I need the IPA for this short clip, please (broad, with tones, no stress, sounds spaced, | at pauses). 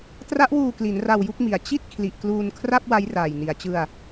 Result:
t r a˦˥ ʔ w uː˧ k l i˩˦ n r a˧ w j u˥˩ k̚ m i˩˦ a̯ t͡ɕ i˥˩ t̚ kʰ l i˨˩ ʔ k l uː˧ n kʰ r a˥˩ p̚ w a˦˥ j r aː˨˩ j n i˨˩ a̯ t͡ɕ ɯ˧ a̯